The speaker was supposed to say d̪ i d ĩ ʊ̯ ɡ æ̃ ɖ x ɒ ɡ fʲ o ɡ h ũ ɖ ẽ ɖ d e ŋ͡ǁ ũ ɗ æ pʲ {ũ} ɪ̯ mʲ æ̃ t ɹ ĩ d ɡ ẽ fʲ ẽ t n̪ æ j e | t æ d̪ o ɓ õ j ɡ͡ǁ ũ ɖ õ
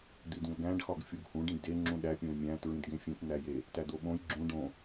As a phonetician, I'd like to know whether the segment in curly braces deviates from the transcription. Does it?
yes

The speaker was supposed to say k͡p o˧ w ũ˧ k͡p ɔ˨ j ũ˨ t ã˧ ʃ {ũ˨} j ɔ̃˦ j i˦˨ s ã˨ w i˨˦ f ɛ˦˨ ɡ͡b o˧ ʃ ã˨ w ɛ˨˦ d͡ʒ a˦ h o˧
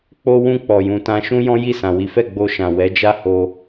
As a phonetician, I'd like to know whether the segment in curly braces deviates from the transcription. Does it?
yes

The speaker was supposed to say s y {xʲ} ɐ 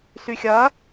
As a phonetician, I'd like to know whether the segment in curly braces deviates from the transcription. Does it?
no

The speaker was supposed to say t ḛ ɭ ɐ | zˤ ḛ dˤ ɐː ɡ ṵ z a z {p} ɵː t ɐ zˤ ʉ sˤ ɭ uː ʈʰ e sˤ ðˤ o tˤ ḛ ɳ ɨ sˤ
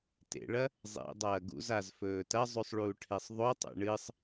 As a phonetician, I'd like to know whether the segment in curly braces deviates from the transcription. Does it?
yes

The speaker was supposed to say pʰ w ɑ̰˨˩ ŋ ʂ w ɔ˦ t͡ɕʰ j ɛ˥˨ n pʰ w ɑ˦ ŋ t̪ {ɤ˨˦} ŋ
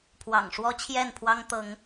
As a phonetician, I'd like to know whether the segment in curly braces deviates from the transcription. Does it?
no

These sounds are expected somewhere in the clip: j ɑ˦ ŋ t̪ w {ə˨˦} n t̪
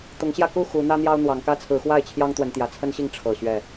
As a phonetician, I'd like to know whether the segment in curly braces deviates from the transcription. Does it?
no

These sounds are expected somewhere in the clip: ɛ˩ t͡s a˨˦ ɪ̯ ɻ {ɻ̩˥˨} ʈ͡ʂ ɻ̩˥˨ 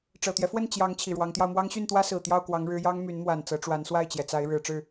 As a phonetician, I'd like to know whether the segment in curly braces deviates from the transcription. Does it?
yes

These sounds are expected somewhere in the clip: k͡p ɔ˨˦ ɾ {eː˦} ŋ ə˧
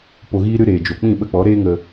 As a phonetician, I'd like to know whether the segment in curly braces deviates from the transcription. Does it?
no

